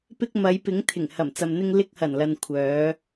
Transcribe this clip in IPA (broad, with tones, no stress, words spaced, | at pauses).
pɪ˧k̚ mɐ˨˧j pɪ˨˥ŋt̪ʰɪ˨˩ŋ hɐ˨˩mt͡sɐ˨mn̪ɪ˧ŋ lɪ˧k̚ hɐ˨˩nlɐ˨n kʷʰœː˨˧